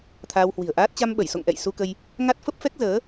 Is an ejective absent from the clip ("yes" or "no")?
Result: yes